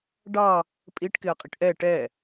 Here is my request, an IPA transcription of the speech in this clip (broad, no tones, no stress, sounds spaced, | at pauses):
ɖ ɑ | pʼ i ʈ k ɪ ɐ̯ qʼ i ʈ ʔ ɛ ʈ ɛ